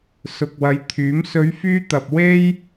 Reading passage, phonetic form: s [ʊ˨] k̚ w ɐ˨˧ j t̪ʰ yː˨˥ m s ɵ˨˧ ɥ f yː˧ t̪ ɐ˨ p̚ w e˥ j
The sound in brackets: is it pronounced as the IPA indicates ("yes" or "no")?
yes